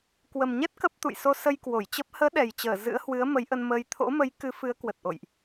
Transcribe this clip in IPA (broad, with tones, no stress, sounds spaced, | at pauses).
k w ə˨˩ m ɲ ɛ˦˥ t̚ k ə˦˥ p̚ t̪ ṵ˧˨ j s o˧ s ə˧ j k w o˧˩ j t͡ɕ ə˦˥ p̚ h əː˨˦ ɗ ɛ˨˩ j t͡ɕ əː˧˩ z ɨ̰˧˥ ə̯ h w ɨ˨˦ ə̯ m ə˨˦ j ʔ ə˧ n m əː˧ j t̪ʰ o̰˧˥ m ə˨˦ j k ɨ˨˦ f ɨ˨˦ ə̯ k w ə˨˩ t̚ ʔ o̰˧˨ j ʔ